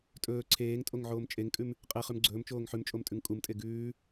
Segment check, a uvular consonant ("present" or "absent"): present